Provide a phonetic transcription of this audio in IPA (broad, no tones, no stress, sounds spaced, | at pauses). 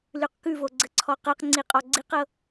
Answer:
l ʉ q k ʉ v o ɡ͡ǀ ə ǀʰ ɔ q ɤ q ŋ͡ǀ i qʼ ɔ ɡ͡ǀ i q ɤ